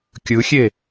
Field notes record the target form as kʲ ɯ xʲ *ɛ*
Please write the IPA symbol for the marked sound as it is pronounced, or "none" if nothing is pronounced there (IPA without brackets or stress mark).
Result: e